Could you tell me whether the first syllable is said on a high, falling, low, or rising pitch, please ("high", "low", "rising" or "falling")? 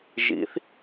rising